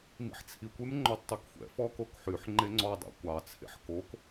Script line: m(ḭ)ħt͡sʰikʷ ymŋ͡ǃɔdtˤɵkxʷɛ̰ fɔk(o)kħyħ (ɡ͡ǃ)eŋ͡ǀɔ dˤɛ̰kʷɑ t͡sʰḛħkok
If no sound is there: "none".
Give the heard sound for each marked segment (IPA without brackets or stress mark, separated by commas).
ḭ, o, ŋ͡ǃ